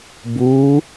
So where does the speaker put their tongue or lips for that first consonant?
lips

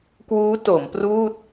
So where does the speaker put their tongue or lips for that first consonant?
velum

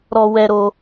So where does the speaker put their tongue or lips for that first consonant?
tongue tip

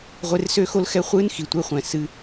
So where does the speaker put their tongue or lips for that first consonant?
uvula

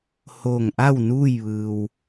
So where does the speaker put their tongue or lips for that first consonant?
throat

